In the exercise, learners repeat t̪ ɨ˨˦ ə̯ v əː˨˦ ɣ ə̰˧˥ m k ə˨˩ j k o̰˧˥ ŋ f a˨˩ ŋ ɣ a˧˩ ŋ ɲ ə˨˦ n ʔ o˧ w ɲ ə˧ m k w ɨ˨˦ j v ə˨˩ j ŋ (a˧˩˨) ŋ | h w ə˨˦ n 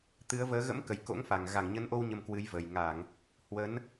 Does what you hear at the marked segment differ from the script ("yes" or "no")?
no